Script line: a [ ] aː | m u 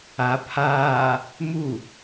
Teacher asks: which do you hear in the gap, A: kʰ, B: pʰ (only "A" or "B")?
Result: B